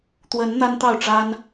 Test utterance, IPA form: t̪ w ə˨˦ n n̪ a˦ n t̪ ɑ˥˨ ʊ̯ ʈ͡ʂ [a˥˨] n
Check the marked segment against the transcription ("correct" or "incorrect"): incorrect